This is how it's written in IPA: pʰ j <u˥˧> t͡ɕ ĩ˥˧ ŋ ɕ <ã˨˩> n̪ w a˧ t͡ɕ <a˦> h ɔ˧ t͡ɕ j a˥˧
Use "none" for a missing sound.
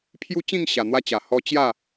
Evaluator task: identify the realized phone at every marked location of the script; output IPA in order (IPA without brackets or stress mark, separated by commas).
u˦, a˨˩, a˨˩